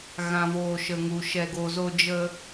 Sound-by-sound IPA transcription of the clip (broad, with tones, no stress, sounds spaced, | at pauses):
ɣ ã˨ v oː˨ ʃ ə˨ ŋ u˨ ʃ ɛ˨ ɡ o˨ z o˦ d͡ʒ ə˦